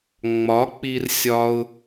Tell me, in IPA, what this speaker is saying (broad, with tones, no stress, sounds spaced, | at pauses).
ŋ͡m ɒ˨˦ k͡p i˧ r sʲ ɒ˦ ʊ̯